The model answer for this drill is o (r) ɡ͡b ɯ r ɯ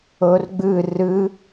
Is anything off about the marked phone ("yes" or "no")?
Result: no